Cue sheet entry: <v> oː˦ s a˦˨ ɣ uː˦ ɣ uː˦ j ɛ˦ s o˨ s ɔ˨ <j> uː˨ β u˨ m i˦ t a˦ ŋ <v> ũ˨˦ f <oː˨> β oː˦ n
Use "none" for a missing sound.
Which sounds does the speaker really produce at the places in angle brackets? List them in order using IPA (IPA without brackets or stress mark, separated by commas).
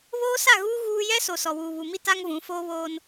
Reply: β, w, v, oː˦